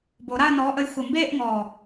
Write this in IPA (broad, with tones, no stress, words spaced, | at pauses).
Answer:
bo˨˩˦ ɾa˥˧ə̯nɔː˨˥ʔə˨˥j xʷə˨˩mbeː˥˧ʔŋɔː˨˩